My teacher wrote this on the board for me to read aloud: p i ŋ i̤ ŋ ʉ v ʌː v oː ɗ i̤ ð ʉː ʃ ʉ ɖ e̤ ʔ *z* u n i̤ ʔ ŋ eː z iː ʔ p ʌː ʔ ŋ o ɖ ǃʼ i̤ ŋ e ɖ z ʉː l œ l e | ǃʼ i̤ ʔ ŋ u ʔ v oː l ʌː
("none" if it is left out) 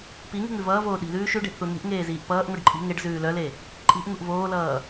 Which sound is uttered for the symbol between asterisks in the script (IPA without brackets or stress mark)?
θ